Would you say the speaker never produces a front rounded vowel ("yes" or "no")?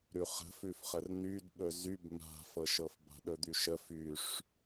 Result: no